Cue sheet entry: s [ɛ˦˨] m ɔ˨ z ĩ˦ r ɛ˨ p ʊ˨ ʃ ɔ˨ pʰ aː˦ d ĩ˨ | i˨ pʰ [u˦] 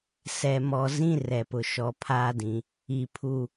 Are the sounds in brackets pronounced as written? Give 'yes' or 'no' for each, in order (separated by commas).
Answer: no, no